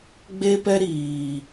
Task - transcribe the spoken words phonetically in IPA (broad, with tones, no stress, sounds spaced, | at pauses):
ɡ͡b e˦ p ɛ˦ ɾ iː˨